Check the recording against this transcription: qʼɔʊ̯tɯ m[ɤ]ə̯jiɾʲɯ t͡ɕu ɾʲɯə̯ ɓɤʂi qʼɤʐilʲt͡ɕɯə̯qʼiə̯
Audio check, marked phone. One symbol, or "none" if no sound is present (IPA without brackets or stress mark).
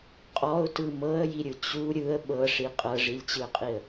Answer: ɤ